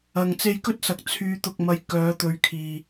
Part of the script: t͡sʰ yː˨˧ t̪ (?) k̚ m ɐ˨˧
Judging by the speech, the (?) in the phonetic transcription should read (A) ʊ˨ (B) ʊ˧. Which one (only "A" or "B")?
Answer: A